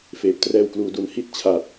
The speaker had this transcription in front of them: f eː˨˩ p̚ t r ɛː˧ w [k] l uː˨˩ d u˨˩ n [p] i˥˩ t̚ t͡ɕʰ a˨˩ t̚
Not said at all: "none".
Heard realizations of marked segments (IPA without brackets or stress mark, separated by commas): k, h